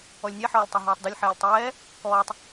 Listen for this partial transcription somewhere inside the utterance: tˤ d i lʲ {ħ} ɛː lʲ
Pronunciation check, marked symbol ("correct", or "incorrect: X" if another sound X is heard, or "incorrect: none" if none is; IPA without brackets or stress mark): correct